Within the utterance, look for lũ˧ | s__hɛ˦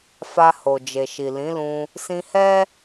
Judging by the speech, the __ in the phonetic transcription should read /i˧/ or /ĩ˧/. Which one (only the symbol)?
ĩ˧